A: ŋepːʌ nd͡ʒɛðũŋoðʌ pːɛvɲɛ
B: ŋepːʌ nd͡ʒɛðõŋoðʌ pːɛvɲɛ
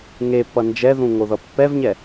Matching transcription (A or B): A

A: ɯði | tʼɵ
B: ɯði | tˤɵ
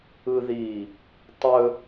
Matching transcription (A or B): B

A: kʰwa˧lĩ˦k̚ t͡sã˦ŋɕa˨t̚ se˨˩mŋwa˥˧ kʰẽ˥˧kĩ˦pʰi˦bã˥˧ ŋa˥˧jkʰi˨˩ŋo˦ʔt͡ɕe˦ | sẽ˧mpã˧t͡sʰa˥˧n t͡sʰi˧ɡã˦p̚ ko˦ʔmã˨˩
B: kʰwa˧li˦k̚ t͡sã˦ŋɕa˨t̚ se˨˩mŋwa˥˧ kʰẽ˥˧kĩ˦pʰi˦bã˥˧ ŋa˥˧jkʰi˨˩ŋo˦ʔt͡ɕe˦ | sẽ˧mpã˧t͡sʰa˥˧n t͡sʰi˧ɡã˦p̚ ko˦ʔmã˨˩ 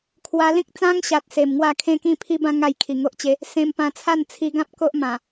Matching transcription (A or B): A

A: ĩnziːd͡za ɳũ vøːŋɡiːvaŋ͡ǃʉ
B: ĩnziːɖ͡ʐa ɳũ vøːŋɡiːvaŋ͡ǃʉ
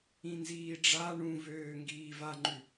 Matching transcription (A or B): B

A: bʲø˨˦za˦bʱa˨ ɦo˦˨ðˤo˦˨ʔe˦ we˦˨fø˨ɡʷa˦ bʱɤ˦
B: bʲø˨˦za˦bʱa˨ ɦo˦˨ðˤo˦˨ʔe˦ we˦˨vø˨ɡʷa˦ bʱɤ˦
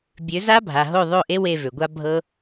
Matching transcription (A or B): B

